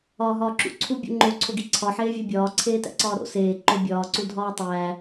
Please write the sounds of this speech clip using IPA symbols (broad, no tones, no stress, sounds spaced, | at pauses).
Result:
ɒː ɦ ɒː ǁ ṵ ǀʰ u bʲ o̰ ŋ͡ǃ o ǀʰ o ɡ i ǀʰ ɒ ħ eː vʲ æ bʲ ɒː ǀʰ eː t æ̰ ǀ ɒː ɾ o̰ s eː ǃ o bʲ ɒː ǀ u dʱ ɒː tˤ æː